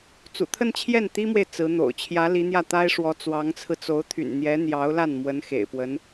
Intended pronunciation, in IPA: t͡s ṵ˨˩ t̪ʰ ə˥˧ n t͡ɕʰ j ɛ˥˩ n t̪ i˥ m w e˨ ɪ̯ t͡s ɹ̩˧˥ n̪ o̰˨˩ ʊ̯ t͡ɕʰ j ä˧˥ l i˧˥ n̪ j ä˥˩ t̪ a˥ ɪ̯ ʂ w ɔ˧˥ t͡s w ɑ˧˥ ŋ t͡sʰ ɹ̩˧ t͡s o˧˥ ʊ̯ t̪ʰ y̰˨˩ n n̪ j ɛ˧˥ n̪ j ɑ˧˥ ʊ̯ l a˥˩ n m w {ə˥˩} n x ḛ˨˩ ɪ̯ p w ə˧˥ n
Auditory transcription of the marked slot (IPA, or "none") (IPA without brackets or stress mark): ə˧˥